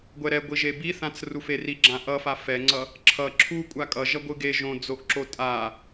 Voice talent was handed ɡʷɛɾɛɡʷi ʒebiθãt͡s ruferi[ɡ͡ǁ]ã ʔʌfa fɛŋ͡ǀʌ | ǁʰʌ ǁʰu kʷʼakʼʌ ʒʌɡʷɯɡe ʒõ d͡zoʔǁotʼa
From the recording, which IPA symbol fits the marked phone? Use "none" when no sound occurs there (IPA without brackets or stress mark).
ɡ͡ǁ